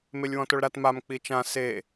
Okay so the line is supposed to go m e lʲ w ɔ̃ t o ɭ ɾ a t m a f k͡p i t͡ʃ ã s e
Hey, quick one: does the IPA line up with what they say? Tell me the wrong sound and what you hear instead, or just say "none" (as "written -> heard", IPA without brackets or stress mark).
f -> m